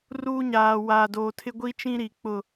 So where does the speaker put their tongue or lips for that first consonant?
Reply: tongue tip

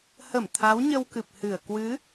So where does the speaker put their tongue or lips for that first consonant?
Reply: throat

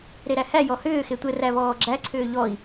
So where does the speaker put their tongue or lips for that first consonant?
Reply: tongue tip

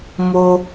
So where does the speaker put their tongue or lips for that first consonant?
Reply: lips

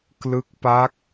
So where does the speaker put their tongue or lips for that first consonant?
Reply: velum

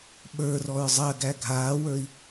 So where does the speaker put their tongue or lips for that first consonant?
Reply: lips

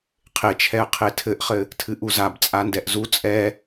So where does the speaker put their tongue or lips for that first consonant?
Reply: uvula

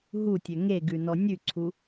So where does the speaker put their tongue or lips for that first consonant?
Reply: throat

